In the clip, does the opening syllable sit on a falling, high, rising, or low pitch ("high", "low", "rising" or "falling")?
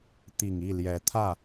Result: low